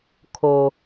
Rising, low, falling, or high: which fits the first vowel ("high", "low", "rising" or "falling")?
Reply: low